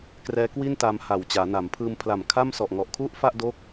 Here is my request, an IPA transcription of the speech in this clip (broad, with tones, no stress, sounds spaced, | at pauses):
k r ɛː˦˥ k w i˥˩ n t a˧ m h a˨˩ w t͡ɕ aː˩˦ n a˩˦ m pʰ ɯː˧ m pʰ l a˨˩ m kʰ a˥˩ m s ɔ˨˩ ʔ ŋ ɔ˨˩ ʔ kʰ u˥˩ ʔ f a˥˩ ʔ d o˦˥ k̚